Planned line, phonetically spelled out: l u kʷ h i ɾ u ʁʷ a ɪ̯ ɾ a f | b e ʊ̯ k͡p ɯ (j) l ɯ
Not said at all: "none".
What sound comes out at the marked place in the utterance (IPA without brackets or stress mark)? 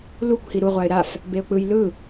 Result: j